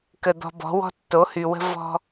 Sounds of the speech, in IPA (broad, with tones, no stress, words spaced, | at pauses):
kə˨ d̪ɔ̤˧bɔ̤˨˦wɔ̤˦ tːo˨˦hy˨wə̤˦ vɔ̤˧